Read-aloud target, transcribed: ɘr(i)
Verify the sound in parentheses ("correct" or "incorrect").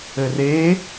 incorrect